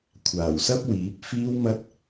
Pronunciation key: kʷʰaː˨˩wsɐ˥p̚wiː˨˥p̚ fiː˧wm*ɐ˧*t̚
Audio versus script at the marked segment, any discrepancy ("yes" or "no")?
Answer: no